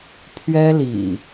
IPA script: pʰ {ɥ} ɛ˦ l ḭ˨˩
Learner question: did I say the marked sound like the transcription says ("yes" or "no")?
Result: yes